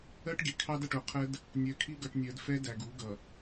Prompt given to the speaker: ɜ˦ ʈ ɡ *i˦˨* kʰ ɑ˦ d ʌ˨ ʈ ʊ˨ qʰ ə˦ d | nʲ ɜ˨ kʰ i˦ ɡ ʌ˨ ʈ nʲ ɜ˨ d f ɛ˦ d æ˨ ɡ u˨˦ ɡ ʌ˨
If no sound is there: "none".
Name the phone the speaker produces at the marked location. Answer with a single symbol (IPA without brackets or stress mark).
i˨